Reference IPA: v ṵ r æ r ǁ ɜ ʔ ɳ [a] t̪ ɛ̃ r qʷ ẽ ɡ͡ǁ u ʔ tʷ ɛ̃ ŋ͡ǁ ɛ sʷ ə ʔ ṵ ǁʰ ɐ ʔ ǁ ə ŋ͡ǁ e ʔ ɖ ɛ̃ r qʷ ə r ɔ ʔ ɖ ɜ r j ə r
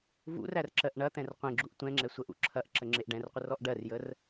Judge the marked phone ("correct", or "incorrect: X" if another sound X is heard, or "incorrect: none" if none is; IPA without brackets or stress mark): incorrect: ɐ